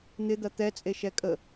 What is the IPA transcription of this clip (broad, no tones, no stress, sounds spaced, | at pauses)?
n̪ ɪ d̪ ɐ t̪ ɛ t͡sʼ e ʃ ɛ kʼ ə